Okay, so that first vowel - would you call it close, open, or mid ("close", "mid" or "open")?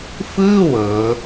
close